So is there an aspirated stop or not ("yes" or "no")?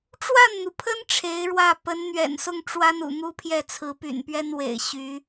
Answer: yes